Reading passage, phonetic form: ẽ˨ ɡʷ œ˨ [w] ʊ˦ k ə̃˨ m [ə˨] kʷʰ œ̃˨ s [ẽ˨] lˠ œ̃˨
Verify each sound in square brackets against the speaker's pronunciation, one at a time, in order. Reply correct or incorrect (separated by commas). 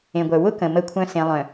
correct, correct, correct